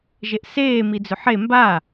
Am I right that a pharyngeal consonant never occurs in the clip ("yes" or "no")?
no